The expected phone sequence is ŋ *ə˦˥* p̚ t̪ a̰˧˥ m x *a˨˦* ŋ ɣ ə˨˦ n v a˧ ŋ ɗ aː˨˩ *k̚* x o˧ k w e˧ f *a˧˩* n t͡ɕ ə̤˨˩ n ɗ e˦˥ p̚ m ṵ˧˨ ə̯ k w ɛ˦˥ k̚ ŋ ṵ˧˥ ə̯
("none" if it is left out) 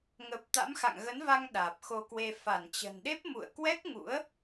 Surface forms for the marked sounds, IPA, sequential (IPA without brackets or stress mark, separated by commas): ə˨˩, a̰˧˨, p̚, a˧˩